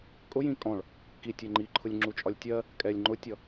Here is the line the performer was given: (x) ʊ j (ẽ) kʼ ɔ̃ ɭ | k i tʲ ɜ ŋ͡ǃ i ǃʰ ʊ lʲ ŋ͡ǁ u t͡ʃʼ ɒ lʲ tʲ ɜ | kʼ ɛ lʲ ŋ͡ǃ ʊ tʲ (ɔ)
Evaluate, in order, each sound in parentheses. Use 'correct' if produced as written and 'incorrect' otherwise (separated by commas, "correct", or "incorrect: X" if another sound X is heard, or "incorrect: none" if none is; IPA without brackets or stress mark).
incorrect: kʼ, incorrect: ĩ, incorrect: ʌ